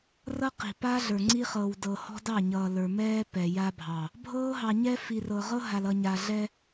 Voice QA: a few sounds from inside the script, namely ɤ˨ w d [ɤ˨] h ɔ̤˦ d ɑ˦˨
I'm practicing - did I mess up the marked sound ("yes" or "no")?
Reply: no